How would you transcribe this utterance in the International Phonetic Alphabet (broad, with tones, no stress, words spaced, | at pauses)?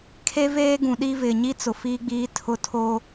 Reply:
kʰe˦veː˦ɡũ˨ɗi˦ vɪ˨ɲi˦t͡sʊ˨ fiː˦ɡ͡biː˦tʰʊ˦˨ tʰoː˦